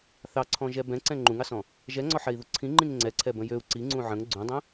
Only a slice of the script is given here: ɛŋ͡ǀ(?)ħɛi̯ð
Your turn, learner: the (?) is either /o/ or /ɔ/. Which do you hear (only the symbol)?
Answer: ɔ